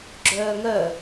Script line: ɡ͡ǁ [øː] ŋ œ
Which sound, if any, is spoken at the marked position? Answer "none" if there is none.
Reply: œː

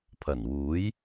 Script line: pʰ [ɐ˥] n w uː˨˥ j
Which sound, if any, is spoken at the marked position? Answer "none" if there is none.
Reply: ɐ˨˩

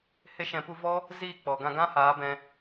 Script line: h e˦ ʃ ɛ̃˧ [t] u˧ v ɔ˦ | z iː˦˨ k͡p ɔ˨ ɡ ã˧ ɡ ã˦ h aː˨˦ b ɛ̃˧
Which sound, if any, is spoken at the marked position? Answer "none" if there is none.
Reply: p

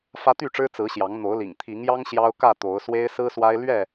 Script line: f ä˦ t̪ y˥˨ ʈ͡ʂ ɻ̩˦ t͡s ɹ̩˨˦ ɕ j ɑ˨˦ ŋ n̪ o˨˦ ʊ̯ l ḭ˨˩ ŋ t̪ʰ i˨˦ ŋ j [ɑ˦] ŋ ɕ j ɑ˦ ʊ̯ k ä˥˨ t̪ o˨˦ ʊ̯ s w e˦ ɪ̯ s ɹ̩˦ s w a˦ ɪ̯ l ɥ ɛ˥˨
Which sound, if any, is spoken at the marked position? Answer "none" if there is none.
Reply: ɑ˦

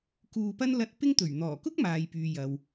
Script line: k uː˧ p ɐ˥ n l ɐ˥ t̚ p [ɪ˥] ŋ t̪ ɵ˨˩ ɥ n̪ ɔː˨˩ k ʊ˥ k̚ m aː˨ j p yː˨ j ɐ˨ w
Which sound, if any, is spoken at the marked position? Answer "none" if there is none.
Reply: ɪ˥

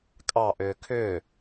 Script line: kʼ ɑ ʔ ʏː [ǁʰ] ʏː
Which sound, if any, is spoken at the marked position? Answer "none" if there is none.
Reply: kʰ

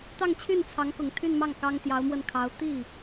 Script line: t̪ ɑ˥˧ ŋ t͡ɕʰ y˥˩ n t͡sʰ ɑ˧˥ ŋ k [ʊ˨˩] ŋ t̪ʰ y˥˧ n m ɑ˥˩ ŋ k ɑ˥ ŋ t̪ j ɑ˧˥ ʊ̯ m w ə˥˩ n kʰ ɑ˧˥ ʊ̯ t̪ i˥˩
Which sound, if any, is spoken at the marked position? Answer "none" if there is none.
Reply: ʊ˨˩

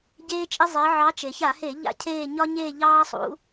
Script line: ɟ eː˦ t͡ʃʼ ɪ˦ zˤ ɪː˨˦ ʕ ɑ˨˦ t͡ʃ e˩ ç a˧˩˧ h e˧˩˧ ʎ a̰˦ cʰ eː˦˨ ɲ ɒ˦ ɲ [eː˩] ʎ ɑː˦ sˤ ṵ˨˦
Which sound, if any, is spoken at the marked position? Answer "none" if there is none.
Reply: eː˦˨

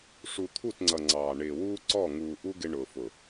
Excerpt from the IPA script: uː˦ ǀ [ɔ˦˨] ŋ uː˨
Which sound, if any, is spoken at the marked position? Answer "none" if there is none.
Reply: ɔ˦˨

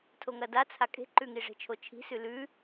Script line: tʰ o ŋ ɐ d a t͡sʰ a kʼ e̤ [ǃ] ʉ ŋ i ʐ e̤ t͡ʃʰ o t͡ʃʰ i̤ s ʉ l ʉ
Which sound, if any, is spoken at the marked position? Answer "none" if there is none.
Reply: ǃ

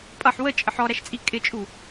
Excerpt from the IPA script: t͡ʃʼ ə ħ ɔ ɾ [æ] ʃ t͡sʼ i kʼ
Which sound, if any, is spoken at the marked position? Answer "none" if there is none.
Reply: æ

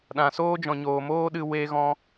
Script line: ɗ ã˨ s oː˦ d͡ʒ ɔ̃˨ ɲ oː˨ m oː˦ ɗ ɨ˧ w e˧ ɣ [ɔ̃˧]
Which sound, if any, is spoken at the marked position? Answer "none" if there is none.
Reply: ɔ̃˧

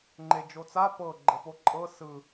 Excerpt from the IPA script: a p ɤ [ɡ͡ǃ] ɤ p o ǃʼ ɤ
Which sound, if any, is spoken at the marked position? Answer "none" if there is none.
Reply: ɡ͡ǃ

